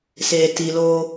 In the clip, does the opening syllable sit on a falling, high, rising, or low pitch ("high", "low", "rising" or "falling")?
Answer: low